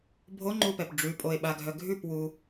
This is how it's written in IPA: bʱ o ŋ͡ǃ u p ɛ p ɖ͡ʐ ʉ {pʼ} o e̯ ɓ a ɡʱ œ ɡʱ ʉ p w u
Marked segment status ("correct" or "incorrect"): correct